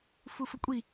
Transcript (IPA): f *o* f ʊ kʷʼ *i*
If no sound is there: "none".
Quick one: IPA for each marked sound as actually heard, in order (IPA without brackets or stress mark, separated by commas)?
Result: u, i